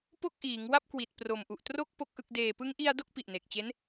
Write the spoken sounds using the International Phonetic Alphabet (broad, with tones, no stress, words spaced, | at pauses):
po˥˩k̚ʔiː˩˦ŋ wa˥˩p̚kwi˨˩t̚pro˨˩mʔu˨˩ʔ tro˥˩k̚ po˥˩k̚ʔɯ˥˩k̚ deː˨˩pɯ˦˥ŋʔi˧a̯ do˥˩k̚pi˨˩ʔne˨˩k̚t͡ɕe˦˥n